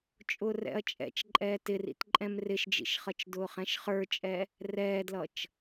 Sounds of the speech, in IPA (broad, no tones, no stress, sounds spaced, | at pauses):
t͡ʃʼ ʊː r ɛ̰ ɐ̯ t͡ʃʼ ɛ̰ t͡ʃ ǃʼ ɛː t ɪ r ḭ t ǃʼ ɛ̃ m r ɪ ʃ d͡ʒ ḭ ʃ χ ʌ t͡ʃ d ʊː χ ɛ̃ ʃ χ ə˞ t͡ʃʼ ɛ | r ɛː d l ʌ t͡ʃ